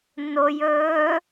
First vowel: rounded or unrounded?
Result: rounded